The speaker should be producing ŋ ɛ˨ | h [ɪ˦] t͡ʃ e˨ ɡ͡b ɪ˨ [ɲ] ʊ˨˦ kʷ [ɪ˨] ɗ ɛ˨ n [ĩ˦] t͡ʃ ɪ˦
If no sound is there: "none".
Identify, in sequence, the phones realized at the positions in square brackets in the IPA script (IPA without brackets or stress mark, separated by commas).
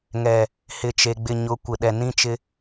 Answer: ɪ˨, ɲ, ɪ˨, ĩ˦